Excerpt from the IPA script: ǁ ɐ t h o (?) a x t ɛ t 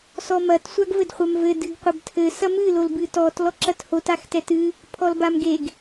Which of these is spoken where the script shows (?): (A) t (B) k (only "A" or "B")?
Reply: A